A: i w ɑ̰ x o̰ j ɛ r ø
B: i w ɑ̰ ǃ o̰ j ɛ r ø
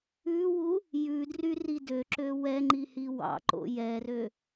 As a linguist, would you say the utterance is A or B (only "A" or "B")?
B